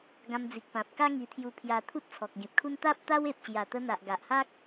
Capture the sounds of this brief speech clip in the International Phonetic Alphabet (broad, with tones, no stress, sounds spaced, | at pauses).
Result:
ɡ ã˧ m d͡z i˨ k̚ p ã˨ p̚ k a˦ ŋ i˧ t̪ʰ j u˧ pʰ j a˧ t̪ʰ u˦ t̚ t͡sʰ ɔ˨ k̚ ɡ ĩ˨ p̚ kʰ u˦ n t̪ a˦ p̚ t̪ a˦ w e˨ p̚ ɕ j a˨˩ t̪ ə˧ n̪ a˨ ʔ ɡ a˨ ʔ h a˦ k̚